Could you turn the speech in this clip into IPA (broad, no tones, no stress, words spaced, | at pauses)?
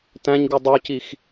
tæ̃ɲɡu dˤucix